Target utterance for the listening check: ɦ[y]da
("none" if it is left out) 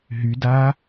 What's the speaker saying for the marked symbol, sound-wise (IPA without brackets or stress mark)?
y